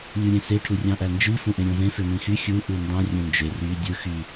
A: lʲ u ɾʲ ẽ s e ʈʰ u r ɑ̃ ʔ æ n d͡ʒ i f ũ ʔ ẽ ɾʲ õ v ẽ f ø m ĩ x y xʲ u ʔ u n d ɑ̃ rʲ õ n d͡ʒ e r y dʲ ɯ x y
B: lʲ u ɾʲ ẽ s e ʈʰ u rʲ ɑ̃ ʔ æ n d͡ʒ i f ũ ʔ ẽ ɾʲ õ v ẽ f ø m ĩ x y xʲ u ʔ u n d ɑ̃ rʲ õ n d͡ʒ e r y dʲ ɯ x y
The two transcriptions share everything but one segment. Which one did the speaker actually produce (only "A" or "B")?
B